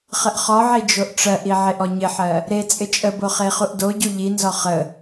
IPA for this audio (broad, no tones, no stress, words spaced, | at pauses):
χəʔχɔʕi d͡ʒoʔʈ͡ʂɜʔi ʕeʔɔɲɪħɜ | ɾe t͡sʼɪt͡ʃʼəbo χeχuʔdoɟu ʎinzɔ χə